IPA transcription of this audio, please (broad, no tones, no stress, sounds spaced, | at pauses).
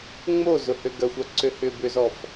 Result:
ŋ͡m o z ʊ h ø ɡ ɐ xʷ œ ǀ ø h ʏ b ʏ z ɔ f